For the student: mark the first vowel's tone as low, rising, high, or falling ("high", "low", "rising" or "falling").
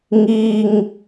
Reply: low